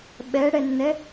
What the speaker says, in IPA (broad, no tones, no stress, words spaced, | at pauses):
ɓɛɽɛnːɛ